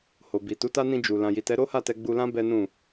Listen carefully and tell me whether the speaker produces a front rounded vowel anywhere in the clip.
no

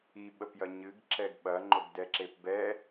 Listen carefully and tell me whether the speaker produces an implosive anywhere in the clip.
yes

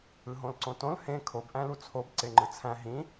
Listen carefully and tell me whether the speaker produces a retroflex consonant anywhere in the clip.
no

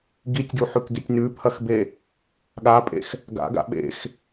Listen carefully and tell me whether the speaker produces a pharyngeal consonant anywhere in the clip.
yes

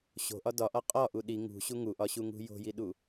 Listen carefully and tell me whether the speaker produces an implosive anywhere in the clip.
yes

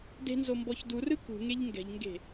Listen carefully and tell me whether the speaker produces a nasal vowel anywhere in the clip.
no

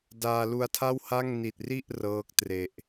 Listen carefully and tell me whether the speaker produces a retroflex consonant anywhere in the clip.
no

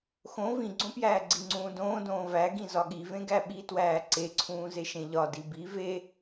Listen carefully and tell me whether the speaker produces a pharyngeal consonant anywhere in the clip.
no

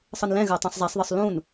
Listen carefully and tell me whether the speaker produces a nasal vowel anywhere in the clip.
yes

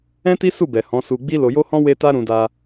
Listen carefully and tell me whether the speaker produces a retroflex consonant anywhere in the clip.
no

